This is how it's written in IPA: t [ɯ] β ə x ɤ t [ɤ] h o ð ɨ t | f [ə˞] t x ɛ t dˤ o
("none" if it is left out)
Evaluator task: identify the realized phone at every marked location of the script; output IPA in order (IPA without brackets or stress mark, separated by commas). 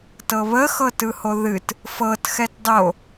ɤ, ɯ, ɤ